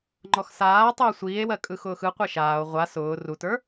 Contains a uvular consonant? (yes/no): yes